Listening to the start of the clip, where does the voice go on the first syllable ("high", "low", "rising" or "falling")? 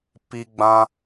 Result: high